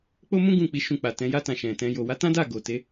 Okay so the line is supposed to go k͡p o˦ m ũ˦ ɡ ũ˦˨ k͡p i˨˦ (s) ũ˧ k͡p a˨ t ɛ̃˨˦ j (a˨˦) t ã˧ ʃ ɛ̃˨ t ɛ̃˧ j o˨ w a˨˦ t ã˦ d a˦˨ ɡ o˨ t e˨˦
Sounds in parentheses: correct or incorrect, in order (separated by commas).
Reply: incorrect, incorrect